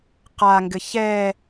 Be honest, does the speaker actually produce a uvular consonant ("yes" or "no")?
yes